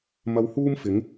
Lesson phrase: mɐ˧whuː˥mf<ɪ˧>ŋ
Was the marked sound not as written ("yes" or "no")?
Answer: yes